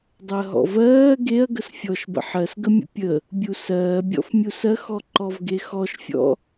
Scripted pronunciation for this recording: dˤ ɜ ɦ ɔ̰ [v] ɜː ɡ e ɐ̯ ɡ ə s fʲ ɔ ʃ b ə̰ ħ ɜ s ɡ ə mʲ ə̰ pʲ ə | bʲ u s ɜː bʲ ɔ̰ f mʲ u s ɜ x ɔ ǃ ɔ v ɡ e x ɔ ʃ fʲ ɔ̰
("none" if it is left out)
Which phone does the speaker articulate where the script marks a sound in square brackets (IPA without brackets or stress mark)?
v